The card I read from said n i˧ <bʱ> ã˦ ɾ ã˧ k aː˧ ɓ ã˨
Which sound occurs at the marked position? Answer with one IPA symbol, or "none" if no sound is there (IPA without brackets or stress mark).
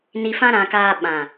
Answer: f